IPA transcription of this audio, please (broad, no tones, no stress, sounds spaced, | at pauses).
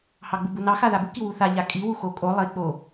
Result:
h ɑ ɡ͡b u b u n ɑ x a ð a b u k i w u θ a ʎ a kʼ i w u x o kʼ o lˠ i k͡p o